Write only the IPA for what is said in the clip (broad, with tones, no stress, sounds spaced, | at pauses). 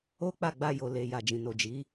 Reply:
o˦ k͡p a˦˨ ɡ͡b a˧ j o˨ l e˨ j a˨ d͡ʒ ĩ˨ n o˨ d͡ʒ i˨˦